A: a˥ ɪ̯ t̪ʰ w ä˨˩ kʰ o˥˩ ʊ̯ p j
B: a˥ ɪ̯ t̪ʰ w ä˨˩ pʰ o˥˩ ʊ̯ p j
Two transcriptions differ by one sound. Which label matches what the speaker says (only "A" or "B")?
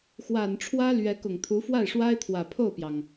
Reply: B